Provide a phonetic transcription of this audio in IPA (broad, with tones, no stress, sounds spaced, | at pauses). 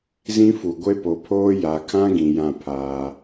z ĩ˦ f u˨ ɡʷ e˦ p o˨ pʰ oː˦ j a˨ kʰ ã˦ ɡ ĩ˨ j ã˦˨ pʰ aː˦